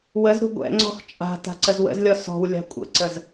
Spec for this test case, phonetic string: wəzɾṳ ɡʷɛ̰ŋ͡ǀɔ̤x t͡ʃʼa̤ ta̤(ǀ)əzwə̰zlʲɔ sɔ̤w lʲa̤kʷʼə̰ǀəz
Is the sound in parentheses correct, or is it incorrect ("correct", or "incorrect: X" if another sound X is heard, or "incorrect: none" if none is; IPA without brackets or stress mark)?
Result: correct